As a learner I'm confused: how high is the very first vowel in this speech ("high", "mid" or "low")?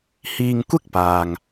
high